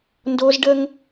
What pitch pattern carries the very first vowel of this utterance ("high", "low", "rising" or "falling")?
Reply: high